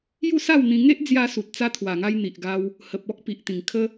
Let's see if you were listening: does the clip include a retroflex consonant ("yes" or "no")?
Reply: no